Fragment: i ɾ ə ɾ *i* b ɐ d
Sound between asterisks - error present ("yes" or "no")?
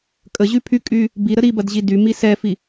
no